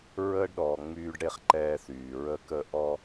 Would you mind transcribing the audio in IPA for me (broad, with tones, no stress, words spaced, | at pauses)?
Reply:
ɹəː˦ɖɗɔː˨ ŋ͡myː˦ɖɽe˦χǃɛː˦θyː˨ ɹə˦kə˦ ʔɔ˦